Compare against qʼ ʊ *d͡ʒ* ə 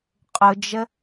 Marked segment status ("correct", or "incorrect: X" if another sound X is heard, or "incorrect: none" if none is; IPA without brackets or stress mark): correct